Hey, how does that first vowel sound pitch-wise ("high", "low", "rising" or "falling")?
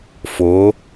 rising